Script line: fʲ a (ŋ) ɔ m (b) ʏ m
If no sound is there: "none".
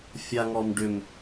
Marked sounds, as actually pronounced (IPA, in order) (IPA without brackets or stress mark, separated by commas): ŋ, ɖ